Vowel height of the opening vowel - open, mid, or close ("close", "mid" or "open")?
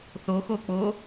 mid